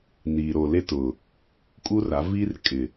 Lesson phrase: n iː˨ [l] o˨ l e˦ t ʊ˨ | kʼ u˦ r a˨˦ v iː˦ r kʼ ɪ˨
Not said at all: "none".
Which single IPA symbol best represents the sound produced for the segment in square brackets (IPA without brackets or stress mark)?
ɾ